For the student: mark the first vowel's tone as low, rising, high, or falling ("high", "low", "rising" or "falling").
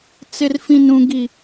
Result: low